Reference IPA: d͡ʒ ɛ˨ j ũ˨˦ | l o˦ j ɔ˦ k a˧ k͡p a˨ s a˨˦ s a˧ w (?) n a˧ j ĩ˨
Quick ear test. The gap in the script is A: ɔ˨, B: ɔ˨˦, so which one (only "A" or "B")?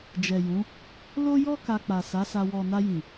A